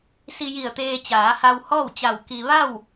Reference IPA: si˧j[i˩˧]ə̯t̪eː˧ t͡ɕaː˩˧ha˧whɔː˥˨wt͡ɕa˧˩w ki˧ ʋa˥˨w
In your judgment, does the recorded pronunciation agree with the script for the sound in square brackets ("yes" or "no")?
no